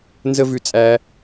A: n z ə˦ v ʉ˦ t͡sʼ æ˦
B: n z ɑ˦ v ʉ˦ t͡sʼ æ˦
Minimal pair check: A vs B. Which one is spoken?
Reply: A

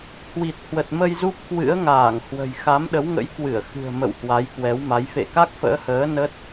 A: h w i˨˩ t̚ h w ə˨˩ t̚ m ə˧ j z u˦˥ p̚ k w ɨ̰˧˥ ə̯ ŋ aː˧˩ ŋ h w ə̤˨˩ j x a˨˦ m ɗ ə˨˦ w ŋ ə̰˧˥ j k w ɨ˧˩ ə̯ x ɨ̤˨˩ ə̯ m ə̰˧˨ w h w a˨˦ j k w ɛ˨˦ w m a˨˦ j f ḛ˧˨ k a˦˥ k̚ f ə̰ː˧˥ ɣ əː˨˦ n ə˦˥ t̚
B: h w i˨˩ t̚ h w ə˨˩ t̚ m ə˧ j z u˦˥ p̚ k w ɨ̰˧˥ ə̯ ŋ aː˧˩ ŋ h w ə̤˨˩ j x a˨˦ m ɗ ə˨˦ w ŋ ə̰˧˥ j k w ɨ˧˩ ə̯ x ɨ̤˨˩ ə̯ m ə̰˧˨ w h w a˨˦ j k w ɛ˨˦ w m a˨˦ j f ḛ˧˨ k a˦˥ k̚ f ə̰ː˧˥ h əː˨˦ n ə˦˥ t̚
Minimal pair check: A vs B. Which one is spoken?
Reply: B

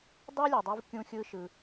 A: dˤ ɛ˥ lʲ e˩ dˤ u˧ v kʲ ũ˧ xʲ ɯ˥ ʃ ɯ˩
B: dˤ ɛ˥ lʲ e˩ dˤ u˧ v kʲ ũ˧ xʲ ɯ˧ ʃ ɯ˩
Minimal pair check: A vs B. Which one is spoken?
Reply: B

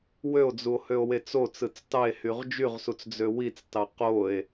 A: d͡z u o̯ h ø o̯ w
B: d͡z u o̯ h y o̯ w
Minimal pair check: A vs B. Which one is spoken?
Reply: A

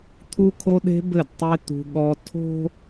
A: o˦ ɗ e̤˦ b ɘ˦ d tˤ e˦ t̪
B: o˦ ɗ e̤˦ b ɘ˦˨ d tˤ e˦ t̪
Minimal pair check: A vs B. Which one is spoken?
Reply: B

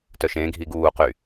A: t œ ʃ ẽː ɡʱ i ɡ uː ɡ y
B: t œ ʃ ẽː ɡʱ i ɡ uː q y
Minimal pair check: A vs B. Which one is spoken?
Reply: B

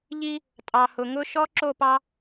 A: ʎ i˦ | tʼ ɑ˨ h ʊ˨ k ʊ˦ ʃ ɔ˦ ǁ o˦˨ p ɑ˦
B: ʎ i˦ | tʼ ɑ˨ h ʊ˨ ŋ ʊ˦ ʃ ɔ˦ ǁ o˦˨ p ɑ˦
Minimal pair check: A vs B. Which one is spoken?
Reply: B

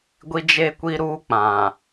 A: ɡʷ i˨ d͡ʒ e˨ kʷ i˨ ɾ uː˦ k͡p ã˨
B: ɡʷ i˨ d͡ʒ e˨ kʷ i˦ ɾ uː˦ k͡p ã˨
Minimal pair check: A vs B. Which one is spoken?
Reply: A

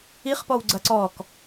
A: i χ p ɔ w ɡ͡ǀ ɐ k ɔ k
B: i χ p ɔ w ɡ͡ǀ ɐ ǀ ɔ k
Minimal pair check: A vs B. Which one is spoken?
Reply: B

